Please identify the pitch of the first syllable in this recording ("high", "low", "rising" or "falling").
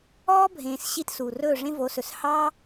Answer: high